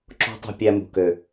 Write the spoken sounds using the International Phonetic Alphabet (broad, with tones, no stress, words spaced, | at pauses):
ǁo̤˦tˤṳ˧ pʲæ˧ mṳ˨kø˨